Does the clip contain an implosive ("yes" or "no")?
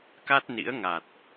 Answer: no